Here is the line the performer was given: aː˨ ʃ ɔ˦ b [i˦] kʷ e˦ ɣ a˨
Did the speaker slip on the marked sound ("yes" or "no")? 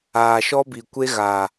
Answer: yes